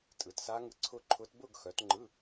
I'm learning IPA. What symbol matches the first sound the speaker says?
tʼ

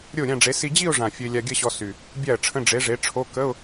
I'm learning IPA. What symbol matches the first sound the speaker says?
ɾʲ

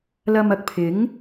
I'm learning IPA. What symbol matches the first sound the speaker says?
l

